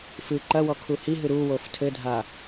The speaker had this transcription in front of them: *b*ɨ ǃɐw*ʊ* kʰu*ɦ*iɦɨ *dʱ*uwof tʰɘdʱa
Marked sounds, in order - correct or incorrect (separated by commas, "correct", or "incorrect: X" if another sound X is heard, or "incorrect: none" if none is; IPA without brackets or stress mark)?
incorrect: f, incorrect: ɔ, incorrect: h, incorrect: ɾ